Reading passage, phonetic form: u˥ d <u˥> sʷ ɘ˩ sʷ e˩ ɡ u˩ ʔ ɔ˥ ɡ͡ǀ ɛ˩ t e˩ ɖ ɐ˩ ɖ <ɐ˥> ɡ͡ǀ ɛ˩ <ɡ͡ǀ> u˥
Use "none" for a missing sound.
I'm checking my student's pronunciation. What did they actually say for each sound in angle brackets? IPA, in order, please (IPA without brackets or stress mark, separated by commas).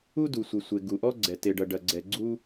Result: u˩, ɐ˩, ɡ͡ǀ